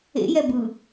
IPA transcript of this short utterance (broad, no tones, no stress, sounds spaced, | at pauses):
ḛ j ɛ b ɯ